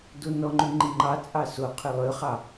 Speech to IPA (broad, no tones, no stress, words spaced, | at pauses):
donɔŋ͡ǃʉ ŋ͡ǃiŋ͡ǃɑt͡sʼɑ so qʰylˠøχɑ